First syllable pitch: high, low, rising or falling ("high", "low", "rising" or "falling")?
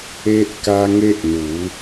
high